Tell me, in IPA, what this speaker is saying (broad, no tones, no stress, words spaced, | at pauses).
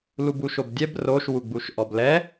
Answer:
lubuʃobdʲɛb roʃ wuɡ͡buʃʔɔblɛ